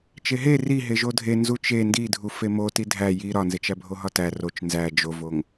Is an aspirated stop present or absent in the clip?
absent